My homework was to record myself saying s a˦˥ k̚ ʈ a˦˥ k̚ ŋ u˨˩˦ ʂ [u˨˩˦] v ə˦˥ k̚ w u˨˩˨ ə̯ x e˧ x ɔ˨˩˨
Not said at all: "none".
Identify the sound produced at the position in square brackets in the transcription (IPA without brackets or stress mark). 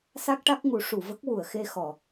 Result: u˨˩˨